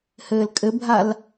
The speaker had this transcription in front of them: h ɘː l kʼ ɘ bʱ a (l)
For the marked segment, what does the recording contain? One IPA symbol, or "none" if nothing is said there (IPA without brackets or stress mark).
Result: l